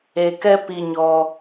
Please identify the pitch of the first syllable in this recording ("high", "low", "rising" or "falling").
low